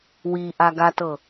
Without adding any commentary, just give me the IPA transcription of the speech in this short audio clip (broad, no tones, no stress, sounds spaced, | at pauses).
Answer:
w i ʔ a ɡ a t ɤ